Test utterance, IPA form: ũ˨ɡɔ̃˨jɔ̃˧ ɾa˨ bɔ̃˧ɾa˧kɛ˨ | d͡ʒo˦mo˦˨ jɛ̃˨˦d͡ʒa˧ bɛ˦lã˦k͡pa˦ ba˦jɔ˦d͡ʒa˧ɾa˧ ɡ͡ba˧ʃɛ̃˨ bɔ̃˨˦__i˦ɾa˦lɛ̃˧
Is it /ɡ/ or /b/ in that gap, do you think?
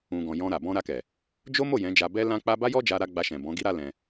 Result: ɡ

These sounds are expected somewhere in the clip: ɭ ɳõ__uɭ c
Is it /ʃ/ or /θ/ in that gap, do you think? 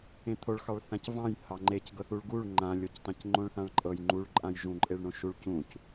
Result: ʃ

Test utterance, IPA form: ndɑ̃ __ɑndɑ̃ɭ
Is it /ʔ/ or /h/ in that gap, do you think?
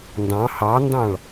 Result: h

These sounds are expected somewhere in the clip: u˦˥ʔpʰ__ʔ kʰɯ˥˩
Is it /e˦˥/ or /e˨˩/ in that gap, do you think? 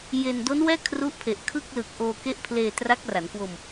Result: e˨˩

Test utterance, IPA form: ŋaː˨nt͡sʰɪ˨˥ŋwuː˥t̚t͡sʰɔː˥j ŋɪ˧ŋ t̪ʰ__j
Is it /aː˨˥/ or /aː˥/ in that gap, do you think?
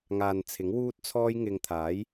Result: aː˨˥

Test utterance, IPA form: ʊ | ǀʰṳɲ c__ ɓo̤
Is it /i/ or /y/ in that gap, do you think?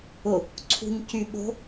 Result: y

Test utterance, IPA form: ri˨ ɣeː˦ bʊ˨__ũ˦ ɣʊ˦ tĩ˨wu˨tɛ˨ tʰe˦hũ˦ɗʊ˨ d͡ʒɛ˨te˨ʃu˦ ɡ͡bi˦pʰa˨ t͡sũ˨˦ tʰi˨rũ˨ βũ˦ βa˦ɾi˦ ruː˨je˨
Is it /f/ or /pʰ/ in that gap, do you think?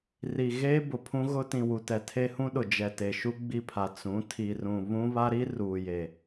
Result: pʰ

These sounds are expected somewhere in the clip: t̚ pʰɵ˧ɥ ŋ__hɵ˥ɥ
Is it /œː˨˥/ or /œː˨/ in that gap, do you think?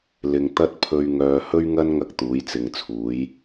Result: œː˨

